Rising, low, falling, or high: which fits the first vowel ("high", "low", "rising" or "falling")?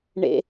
low